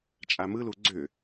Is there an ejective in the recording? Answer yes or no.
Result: yes